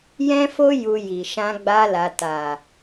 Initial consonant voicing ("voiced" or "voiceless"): voiced